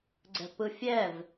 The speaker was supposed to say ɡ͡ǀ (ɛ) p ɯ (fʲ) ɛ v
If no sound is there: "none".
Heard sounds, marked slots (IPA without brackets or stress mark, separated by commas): ɛ̤, fʲ